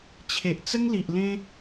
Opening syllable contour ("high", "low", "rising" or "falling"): low